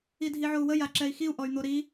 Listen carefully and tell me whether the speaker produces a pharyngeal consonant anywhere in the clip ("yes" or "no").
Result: yes